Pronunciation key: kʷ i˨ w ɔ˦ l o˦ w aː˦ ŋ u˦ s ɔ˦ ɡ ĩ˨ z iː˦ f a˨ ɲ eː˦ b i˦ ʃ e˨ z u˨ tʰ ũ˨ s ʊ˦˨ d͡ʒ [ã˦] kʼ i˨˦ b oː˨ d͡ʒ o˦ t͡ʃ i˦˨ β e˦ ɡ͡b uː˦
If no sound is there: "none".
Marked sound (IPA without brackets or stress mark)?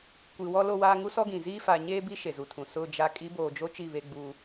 a˦